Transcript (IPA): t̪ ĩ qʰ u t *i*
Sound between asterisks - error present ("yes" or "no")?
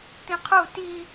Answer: no